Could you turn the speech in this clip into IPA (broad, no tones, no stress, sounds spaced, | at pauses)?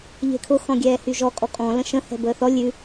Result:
ʎ e̤ kʰ ʊ x ɔ̃ ɡʲ ɛː h y ʒ ɔ kʼ ɔ kʼ ɔ̃ l ə̃ ʃ ə̃ h ɛ̤ b əː θ ɔ lʲ ʉ